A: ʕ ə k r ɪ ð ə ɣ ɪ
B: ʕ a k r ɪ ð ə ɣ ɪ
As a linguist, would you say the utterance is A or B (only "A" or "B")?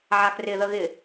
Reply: B